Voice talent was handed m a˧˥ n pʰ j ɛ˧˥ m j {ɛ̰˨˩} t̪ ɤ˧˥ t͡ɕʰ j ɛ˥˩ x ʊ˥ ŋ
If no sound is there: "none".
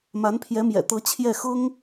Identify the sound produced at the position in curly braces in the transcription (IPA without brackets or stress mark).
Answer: ɛ̰˨˩